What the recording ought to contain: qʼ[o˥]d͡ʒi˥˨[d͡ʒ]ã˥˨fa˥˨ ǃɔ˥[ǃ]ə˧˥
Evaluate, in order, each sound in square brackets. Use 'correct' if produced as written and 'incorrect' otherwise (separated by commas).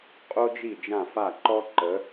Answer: correct, correct, correct